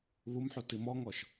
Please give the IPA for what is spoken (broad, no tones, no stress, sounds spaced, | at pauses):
β u m ħ u t i m ɔ ŋ ɔ ʃ